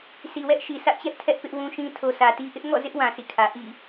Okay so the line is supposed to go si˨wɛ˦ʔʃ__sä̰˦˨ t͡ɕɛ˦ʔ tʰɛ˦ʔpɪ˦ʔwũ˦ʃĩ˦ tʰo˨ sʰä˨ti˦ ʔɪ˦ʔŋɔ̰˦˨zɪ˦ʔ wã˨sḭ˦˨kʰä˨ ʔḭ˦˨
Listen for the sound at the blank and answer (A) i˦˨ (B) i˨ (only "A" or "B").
B